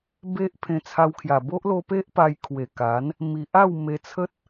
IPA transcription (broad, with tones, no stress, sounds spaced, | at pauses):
b e˦ ʔ pʰ ẽ˧ t͡sʰ a˧ w kʰ j a˨˩ b o˦ ʔ l o˧ p e˦ ʔ p a˧ j kʰ w e˨˩ k a˨˦ n | m i˨ ʔ a˥˧ w m e˧ t͡sʰ ə˦ t̚